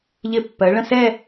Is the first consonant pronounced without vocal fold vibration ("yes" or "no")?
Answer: no